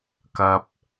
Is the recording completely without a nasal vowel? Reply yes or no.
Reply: yes